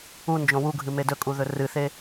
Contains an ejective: yes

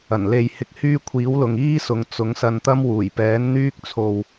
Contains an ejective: no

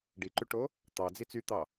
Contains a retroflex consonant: yes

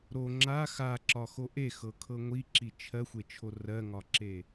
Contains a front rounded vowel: no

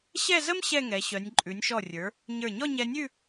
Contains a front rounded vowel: yes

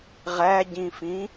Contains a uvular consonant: yes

